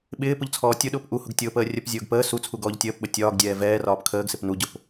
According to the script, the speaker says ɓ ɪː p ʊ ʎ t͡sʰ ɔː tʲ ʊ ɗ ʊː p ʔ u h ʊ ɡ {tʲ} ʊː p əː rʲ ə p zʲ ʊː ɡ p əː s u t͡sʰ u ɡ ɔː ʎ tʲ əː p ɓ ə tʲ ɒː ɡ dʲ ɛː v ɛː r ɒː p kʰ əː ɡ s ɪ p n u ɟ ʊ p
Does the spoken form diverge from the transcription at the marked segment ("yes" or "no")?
no